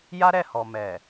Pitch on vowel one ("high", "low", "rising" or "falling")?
high